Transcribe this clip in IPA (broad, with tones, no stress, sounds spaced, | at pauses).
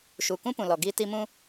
ʃ u˨ k ũ˦ p ũ˨ l ɔ˨ ɡ iː˦ t i˦ m ũ˦